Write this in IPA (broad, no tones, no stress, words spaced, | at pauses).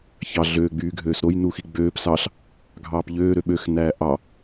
çɑ ɮøː ɡ͡byːɡʱøːsɾoj nuxiɡ͡bøːp sɑɬ | ɡʱɑːpʎøː ɾøɓøx næːʔɑ